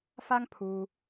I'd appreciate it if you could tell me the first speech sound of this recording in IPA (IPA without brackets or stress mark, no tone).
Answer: f